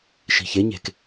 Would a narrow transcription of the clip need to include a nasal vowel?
no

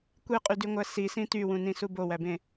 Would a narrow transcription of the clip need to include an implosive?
no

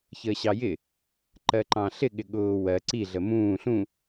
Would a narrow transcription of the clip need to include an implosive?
yes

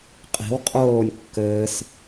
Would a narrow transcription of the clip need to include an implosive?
no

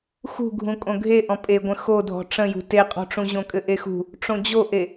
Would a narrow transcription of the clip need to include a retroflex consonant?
yes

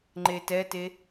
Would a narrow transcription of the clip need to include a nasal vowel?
no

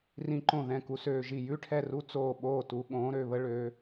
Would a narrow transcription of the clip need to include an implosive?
yes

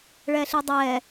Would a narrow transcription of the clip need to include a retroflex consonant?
yes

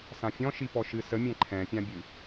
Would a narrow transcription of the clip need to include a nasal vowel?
yes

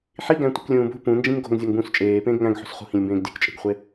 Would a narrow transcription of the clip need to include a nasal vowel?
yes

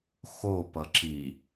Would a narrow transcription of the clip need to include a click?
yes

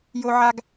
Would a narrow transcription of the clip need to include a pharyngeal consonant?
yes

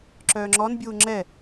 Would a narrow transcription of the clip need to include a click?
yes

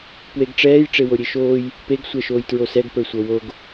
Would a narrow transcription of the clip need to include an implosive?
no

